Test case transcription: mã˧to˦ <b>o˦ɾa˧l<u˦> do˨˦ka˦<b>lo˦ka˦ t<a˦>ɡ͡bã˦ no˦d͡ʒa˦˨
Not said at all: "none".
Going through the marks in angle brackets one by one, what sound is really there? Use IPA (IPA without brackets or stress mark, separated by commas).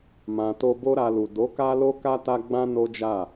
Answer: b, u˨, none, a˦